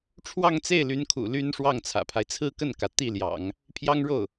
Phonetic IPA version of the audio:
ʈ͡ʂʰ w ɑ˥˧ ŋ t͡s e˥˩ ɪ̯ l y˧˥ n kʰ ṵ˨˩ l y˥ n ʂ w ɑ˥˩ ŋ t͡sʰ ä̰˨˩ pʰ a˦ ɪ̯ t͡sʰ ɹ̩˥˧ k ə˥˩ n k ä˩ t̪ i˥˩ l j ɑ̰˨˩˦ ŋ | pʰ j ɑ˥ ŋ ɻ o˥˩ ʊ̯

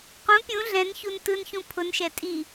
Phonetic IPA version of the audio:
q ũ pʲ ũ ɮ ɛ̃ n ç u n t ɯ n ç ũ pʰ ʊ n ʃ ɛ tʼ i

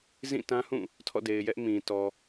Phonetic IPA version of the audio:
z ĩ˦˨ t ã˦ h ũ˦˨ | tʰ ɔ̰˦˨ d e˨ ɪ̯ j ɛ˦ ʔ m ĩ˨ t ɔ˨

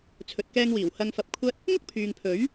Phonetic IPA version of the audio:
t͡sʰ ɵ˨ t̚ k ɛː˧ ŋ w iː˨˩ w h ɐ˧ ŋ f ɐ˧ p̚ kʷʰ ɐ˥ t̚ | ŋ ʊ˥ k̚ pʰ yː˨ ŋ pʰ ɵ˨˥ ɥ

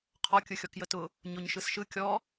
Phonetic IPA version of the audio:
qʰ ɔ kʲ ɯ xʲ ɔ k j ə t ʊ | ɲ o ɲ ʃ ɯ s ʃ ɯ kʲ ɔ

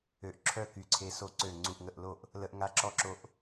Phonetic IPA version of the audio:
ø˧˩ ʔ ǁʰ œ˥˩ k y˧˩ ǀʰ e˧ s o˥˩ ǀ ø˥˩ ŋ͡ǀ u˧˩ ʔ ŋ ə˧˩ ʔ l o˥˩ ʔ | l ə˧ ʔ ŋ a˧˩ ǁ ɔ˥˩ ǁ o˧ ʔ

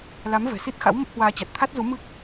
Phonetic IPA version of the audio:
l a˨˦ m v ɛ̤˨˩ s i˦˥ t̚ x a̰˧˥ w m ə˦˥ p̚ h w aː˧ t͡ɕ a˨˩ t̚ t̪ʰ a˦˥ t̚ z u˨˦ m ɨ˦˥ k̚

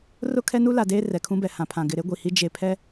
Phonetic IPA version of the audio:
r ʊ˦ kʰ ɛ˦ n u˦ l a˨ d eː˦ r ɛ˨ kʰ ũ˦ b ɛ˨ h ã˨ pʰ ã˨ ɡ ɪ˨ ɾ e˦ ɡʷ i˨ h i˦ d͡ʒ e˨ pʰ ɛ˦

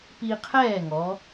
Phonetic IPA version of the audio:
p i˧ qʰ ɛː˥˩ ŋ ɔ˩˧

